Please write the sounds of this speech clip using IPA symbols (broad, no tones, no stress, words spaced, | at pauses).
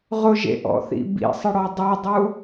ʁʊʒḛʔɔ̰θḭ bḭsˤɪɽɔ dˤɛdˤu